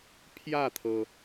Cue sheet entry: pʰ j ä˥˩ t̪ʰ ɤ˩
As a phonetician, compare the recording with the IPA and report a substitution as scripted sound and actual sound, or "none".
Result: none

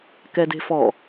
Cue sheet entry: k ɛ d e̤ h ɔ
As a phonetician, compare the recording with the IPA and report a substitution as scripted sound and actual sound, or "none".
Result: h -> f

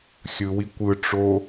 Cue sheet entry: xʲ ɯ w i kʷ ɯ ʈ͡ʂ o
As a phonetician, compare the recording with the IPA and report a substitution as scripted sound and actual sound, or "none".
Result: none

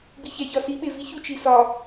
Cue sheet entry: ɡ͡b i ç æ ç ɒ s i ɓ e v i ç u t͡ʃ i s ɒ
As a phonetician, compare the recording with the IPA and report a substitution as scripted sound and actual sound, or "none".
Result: none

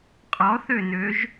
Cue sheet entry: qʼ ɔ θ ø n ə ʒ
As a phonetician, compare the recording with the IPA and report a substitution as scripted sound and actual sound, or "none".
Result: ə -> ø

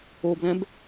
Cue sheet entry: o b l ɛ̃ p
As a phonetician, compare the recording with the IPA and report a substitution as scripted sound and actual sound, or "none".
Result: p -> b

